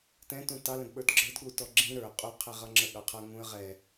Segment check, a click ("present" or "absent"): present